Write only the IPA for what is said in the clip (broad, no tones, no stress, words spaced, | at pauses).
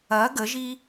ɐ ɡəʒi